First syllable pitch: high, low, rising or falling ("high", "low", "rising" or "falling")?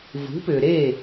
rising